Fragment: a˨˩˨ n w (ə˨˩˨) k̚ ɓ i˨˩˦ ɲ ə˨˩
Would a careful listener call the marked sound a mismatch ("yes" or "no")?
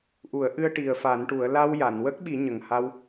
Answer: yes